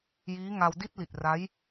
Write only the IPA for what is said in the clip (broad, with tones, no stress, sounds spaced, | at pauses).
j iː˦˥ ŋ a˧ w d i˥˩ t̚ l i˨˩ t̚ r a˦˥ j